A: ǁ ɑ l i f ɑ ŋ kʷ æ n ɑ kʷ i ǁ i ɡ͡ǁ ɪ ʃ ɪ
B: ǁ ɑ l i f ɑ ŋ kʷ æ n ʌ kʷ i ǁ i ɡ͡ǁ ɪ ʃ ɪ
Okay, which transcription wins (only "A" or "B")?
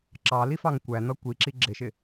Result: B